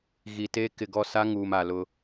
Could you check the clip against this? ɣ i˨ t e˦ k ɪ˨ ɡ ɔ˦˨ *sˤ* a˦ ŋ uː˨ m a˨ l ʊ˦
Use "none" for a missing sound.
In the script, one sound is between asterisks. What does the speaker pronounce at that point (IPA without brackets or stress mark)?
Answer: s